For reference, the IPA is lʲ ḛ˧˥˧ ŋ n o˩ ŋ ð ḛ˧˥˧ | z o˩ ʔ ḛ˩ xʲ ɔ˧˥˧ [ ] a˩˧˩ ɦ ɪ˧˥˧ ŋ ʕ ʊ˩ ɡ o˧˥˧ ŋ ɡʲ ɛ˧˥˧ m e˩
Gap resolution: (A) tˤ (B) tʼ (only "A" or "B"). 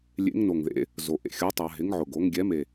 A